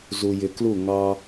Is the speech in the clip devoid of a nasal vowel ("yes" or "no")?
yes